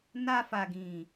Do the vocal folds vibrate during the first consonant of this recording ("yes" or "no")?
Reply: yes